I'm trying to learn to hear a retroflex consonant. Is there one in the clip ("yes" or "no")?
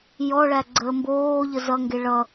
yes